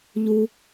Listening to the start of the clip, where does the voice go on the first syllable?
low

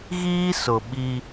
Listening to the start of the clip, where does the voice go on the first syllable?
high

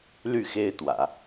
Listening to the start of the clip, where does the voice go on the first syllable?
falling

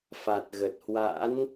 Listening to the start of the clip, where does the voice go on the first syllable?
low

